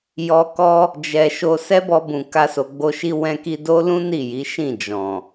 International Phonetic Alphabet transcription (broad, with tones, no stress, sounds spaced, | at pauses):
j ɔ˧ k ɔ˦ | d͡ʒ ɛ˨ ʃ o˧ s ɛ˦ b ɔ˧ b ũ˨ k a˧ s o˨ ɡ͡b o˧ ʃ i˦ w ɛ̃˧ k i˧ d o˦ l ũ˦ n i˦˨ j i˨˦ ʃ ĩ˦˨ d͡ʒ ɔ̃˨